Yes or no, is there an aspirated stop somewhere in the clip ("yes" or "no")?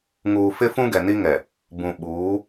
no